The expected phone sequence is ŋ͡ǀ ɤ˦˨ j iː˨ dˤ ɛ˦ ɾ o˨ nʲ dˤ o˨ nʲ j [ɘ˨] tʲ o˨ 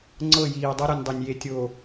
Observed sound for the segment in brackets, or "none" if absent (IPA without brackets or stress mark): e˨